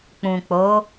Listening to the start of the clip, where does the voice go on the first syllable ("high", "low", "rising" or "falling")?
low